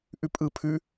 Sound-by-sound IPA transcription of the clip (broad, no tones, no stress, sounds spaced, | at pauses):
ʔ ʉ pʼ ɯ pʰ ʉ